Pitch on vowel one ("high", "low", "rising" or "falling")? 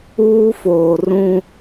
high